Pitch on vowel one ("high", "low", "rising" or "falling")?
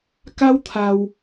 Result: high